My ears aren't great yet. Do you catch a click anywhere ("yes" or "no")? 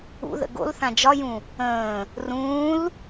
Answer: no